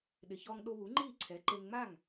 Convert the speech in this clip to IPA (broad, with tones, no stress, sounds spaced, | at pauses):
ɗ ɪ˩ ç ɔ˧ ŋ ɗ o˧ β u˩˥ ŋ͡ǃ iː˥˩ ǀʰ ɛ˩˥ ǃ e˧ ŋ ŋ͡m a˥˩ ŋ